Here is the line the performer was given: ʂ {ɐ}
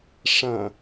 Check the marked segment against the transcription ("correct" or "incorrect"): incorrect